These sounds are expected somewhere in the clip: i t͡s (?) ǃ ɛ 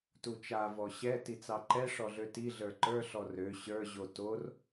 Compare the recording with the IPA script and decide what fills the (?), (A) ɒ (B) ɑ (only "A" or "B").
B